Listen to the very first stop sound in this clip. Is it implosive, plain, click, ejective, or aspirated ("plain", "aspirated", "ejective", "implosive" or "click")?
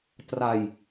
plain